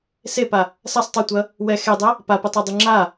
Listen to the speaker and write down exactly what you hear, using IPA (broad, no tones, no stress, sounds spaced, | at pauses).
s e p a | s ɐ sˤ tˤ ɯ tʷ ɐ | w ɛ x e dˤ ɛ | p a p ɯ tˤ a dˤ ɯ ŋ͡ǁ a